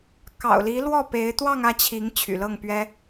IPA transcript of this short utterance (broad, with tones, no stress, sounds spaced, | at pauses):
k ɑ̰˨˩ ʊ̯ l i˧˥ l w ɔ˥˩ p e˧˥ ɪ̯ t̪ w ɑ˥˧ ŋ ä˥˩ t͡ɕʰ i˧˥ ŋ t͡ɕʰ y̰˨˩ l ɤ˥˩ ŋ p ɥ ɛ˥